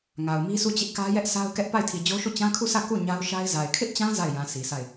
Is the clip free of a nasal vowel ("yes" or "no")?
no